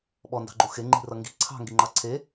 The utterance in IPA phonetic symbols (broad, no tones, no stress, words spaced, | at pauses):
ɓɔndɑ̤ɡ͡ǃu xeŋ͡ǃi̤rʌ ŋɡi̤ ǀʰɑ̤ŋɡiŋ͡ǃɑ ǀʰe